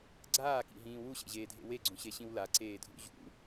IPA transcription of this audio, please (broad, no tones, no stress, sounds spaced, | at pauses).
ɡ͡ǀ aː k ḭ ɦ ĩː w u ɕ ḛ ʑ eː dʱ ḛ w e ɡ͡ǀ ũ ɕ e ɕ ĩ w l a ǀ eː dʱ ṵ ʑ ṵ